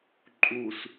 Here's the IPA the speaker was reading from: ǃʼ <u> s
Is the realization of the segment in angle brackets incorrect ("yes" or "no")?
no